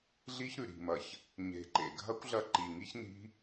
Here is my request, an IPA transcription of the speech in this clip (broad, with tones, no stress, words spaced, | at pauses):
ɮi˦˥çɾʉ˨˩ɾi̤˨˩mɐ˨˩ç | ɲe̤˨˩ǃḛ˨˩ɡʱɐ˦˥kʷ ɮɐ˦˥ǃi˨˩ŋi˦˥çni̤˦˥